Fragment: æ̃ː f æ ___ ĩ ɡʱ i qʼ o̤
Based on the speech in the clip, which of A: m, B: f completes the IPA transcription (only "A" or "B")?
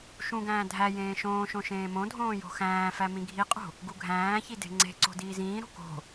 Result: A